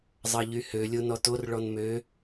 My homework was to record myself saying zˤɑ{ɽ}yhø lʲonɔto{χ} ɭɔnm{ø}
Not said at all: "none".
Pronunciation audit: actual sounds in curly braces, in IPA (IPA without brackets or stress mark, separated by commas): ʎ, r, ø